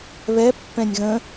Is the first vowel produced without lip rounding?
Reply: yes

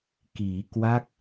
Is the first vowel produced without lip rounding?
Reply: yes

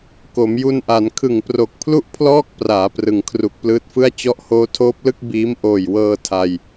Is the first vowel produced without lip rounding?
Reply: no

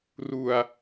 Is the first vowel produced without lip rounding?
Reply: no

